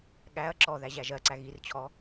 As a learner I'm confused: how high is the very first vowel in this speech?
low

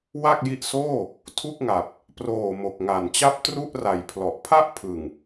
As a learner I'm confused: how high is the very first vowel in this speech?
low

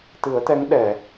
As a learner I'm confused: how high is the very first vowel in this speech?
high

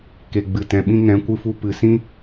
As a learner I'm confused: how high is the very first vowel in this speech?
mid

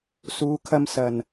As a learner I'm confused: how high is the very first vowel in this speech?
high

